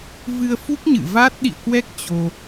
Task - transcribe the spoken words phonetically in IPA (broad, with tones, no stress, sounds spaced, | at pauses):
v ɨ˧ ə̯ f u˦˥ k̚ ɲ ɨ̰˧˨ v a˦˥ t̚ ɗ ḭ˧˨ ə̯ k w ɛ˦˥ k̚ t͡ɕ o˧